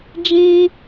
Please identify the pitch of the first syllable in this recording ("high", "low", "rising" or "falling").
high